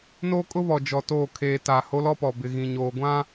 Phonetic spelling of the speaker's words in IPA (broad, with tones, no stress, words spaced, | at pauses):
noː˦kʼʊ˦βɔ˨ d͡ʒɔ˨ toː˦˨ kʰeː˨ ta˨ ho˦lɔ˦pɔ˨ bɪ˨ɣĩ˨ɲoː˨ ɡʷã˦